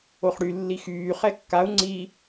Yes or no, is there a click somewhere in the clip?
yes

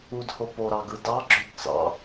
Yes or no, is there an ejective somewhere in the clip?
no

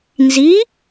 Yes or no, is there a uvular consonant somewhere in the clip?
no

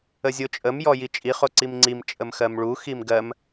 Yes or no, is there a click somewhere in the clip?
yes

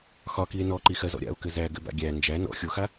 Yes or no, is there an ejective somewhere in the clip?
no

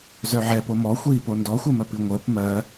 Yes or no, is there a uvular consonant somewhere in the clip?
no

